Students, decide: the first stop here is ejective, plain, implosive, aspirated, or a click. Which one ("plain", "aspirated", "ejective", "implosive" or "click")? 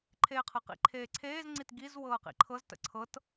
click